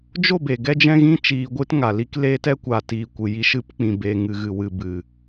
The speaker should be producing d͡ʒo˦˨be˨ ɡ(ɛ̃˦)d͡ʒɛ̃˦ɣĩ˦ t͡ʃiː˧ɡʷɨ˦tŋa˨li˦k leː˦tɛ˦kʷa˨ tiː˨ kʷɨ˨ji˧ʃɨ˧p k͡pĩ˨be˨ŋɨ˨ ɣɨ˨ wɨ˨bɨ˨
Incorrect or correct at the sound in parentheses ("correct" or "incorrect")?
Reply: incorrect